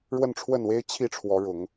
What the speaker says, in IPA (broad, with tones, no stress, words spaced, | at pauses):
ɻwə˥˨nʈ͡ʂʰwə˥˨nwe˦ɪ̯ t͡ɕʰi˥˨ʈ͡ʂʰwɔ˨˦ɻʊ˨˦ŋ